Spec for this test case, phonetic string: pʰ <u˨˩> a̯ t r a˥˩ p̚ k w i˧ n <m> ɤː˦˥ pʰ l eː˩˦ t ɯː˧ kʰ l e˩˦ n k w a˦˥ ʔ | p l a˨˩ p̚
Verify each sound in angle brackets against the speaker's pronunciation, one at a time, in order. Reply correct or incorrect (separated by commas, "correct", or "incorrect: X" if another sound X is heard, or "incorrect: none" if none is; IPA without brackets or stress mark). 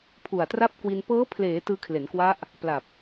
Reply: correct, incorrect: p